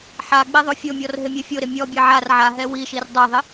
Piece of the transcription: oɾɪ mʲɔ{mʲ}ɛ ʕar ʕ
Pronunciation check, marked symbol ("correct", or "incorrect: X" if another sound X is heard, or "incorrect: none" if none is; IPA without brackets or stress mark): incorrect: bʲ